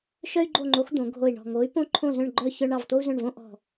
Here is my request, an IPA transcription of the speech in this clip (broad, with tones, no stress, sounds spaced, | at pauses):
ʃ œ˥ y̯ ɡ͡ǃ o˥˧ ŋ͡ǃ o˧˥ x d̪ õ˧˥ ɡʱ o˥˧ i̯ ɳ ɔ̤˥˧ ŋ o˧˥ y̯ p õ˥ ǃʰ õ˥˧ z œ̃˥˧ ɳ ɡ͡ǃ œ˥˧ ç œ˥ ɳ ɑ˥˧ v t̪ o˥ u̯ z œ̃˥˧ ɳ v õ˥ ʔ ɔ̤˥˧